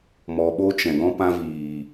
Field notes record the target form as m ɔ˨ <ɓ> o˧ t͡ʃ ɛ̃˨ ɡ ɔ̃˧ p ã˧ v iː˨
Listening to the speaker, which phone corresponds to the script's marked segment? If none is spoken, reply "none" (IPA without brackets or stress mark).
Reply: ɓ